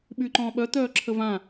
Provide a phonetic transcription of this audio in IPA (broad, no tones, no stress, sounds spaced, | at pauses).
ɓ y ǃ ɔ̃ː ɓ œ t̪ œː ǁʰ ə v ã